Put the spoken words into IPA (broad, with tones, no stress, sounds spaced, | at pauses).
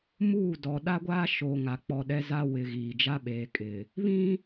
m uː˦˨ d ɔ˨ ɗ a˦ ɡʷ aː˦ ʃ o˨ ŋ a˨ k͡p ɔ˨ ɗ ɛ˦ z a˦ w ɪ˨ ɣ iː˨ d͡ʒ a˦ ɓ eː˨ kʼ ɪ˨ | β ĩ˦